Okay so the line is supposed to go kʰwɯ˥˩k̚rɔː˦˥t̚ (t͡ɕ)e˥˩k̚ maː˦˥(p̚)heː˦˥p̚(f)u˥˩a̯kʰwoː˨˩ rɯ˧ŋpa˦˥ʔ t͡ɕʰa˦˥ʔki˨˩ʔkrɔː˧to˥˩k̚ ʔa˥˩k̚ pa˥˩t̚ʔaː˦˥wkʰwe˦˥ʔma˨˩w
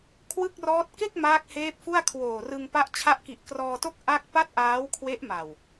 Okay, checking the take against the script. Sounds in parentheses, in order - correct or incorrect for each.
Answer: incorrect: k, incorrect: k̚, correct

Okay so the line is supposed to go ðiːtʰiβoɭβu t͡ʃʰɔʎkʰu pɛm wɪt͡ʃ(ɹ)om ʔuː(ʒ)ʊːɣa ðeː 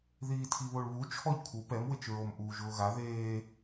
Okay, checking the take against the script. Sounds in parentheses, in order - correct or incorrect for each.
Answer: correct, correct

